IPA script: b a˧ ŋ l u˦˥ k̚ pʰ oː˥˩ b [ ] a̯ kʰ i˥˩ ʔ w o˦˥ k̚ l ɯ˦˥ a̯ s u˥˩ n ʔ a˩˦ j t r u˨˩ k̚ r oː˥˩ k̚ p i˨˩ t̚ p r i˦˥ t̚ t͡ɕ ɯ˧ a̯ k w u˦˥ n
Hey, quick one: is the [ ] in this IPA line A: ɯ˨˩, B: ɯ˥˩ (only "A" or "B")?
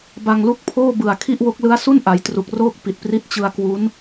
A